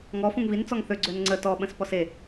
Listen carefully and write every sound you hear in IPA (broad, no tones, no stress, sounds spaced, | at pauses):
ŋ ɔ f ũ ŋ v i n t͡s ɔ ŋ θ ø ɡ͡ǀ ø n ŋ͡ǀ ə t ɔ ɓ ə̃ s p ɔ s e